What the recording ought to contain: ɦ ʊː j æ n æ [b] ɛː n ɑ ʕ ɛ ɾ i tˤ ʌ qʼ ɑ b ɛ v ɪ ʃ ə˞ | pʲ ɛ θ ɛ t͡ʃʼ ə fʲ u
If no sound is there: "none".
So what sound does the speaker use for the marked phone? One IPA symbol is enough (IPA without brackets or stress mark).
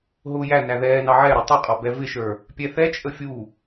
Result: ð